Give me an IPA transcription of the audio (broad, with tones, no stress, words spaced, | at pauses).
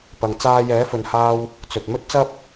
pɐ˨ŋt͡saː˧ jɛː˨˥fɵ˨nhaː˧w | t͡sɵ˨t̚ mɵ˥t̚t͡sɐ˥p̚